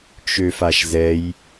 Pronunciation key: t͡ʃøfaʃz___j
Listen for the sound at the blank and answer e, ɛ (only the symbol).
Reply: ɛ